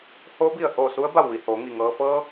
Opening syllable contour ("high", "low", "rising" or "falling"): rising